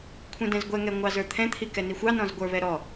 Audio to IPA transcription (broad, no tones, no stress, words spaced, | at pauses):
kʷʰɛ̃dɛ̃zɡʷɛŋɛ ŋʷɑzə˞t̪ʰɛ̃t̪ʰi kɛnixʷɑnɔ̃z ɡʷə˞βɛ ɾɔ